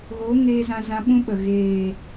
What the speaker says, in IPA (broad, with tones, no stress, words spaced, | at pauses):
ɣo˨˦ŋeː˧ zã˧zã˧ɓũ˦ɓə˨ ɣeː˨